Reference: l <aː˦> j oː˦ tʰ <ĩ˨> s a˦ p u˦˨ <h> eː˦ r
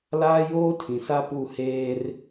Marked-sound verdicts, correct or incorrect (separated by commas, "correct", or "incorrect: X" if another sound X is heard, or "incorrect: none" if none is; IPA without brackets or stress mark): correct, correct, correct